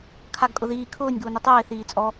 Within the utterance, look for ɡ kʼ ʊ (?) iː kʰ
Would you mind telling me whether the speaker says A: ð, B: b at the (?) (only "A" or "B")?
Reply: A